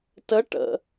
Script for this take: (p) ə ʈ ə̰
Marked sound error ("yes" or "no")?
yes